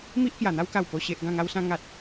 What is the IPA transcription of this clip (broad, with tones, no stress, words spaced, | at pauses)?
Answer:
mi˦ʔkja˨˩n̪a˦wka˨˩w po˨˩ɕe˨ʔ ɡã˥˧ŋa˦wsã˦ ŋa˦t̚